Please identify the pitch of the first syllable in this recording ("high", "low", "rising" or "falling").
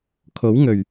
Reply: rising